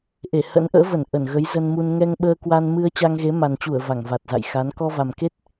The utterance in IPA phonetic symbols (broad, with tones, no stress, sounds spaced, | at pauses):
ʔ e˧˩ h ə̰˧˥ n ʔ ə̰ː˧˥ v ə˧˩ n ʔ ə˧˩ n ɣ ə˨˦ j z ə˧ n m u˧ n ŋ ɛ˧ ŋ ɓ əː˧ k w a˧ n m ɨ˧ ə̯ t͡ɕ a˧ ŋ ɣ e˨˦ m a˨˩ n t͡ɕ u˧˩ ə̯ v a˧˩ ŋ v a˨˩ t̚ z a̰˧˨ j x a˨˦ n k ɔ˧ v a˨˩ m k e˦˥ t̚